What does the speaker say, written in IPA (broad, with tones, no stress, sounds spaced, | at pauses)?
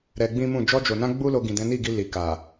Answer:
ɾ ɛ˧ ɡ͡b ĩ˦ m ũ˦˨ d͡ʒ ɔ˧ d͡ʒ o˨ n ã˧ ɡ͡b u˦ l o˧ ɡ ĩ˨ d ɛ̃˨˦ n i˦˨ ɡ i˧ l i˨ k a˨